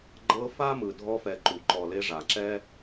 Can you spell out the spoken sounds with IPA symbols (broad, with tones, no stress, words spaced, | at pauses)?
ɡ͡ǃɤ˦fa˥ mɯ˨dʱɔ˦fɛ˨ǃu˩ ǃɔ˨le˦ ʐa˩ǁɛ˥